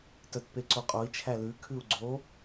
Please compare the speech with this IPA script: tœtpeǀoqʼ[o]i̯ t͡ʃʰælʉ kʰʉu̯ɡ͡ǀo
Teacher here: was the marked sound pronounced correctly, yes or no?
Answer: yes